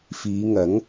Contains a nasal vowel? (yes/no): no